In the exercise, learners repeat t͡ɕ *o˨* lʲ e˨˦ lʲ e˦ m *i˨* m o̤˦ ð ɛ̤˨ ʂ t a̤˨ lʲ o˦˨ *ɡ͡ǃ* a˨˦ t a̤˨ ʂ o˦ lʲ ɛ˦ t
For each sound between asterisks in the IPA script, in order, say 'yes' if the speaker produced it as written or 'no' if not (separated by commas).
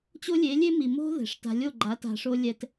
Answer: no, yes, yes